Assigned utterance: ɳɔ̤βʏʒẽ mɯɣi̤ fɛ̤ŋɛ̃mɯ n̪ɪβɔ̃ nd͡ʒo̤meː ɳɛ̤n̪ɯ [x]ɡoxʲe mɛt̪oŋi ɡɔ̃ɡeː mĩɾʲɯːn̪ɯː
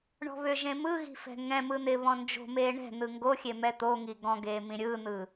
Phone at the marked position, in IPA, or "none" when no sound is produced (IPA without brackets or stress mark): ŋ